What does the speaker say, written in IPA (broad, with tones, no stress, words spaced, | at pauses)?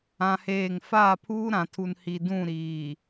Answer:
ã˦heː˦˨ŋ faː˦˨pʰuː˦ɾã˨tʰu˨n hi˨dũ˦˨ɾiː˨